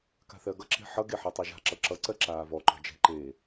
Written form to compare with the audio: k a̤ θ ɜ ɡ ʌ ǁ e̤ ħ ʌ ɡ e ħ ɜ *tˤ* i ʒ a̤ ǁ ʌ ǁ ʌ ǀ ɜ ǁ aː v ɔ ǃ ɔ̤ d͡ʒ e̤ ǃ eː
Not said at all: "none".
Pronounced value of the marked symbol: tˤ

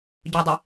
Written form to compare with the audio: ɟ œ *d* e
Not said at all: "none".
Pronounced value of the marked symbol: dˤ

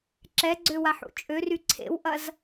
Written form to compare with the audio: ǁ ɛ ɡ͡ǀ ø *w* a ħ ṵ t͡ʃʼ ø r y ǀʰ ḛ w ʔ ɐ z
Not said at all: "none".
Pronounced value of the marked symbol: w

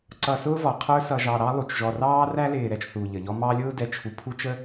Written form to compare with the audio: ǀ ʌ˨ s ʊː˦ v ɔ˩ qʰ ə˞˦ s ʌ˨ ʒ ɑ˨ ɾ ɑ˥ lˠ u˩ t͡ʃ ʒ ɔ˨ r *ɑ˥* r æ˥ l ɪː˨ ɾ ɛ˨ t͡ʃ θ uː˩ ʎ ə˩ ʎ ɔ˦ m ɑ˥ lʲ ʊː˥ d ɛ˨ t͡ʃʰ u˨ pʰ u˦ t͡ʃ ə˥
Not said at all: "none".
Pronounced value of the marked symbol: ɑː˥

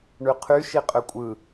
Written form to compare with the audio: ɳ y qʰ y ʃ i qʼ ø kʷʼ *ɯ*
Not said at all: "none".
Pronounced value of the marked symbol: ɯ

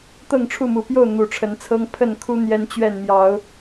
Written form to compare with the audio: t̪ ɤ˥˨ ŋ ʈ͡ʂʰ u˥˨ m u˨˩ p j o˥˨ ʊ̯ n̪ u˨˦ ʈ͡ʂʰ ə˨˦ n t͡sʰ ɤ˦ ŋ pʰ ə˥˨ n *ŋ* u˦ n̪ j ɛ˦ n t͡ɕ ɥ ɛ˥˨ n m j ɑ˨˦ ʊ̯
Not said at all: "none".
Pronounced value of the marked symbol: kʰ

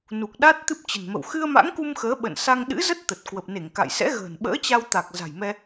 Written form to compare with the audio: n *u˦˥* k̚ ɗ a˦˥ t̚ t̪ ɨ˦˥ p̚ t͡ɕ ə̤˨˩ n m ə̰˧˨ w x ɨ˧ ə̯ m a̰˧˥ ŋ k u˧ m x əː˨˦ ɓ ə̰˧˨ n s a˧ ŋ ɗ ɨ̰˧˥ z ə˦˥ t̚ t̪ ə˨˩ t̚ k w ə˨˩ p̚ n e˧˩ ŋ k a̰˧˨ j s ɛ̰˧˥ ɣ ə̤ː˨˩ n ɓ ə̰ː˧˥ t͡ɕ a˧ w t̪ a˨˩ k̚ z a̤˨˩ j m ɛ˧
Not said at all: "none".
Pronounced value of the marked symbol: u˨˩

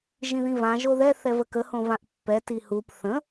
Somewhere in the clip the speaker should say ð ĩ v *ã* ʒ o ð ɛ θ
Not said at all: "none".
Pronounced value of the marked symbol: ã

